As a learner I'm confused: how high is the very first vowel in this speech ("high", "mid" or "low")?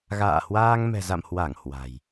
low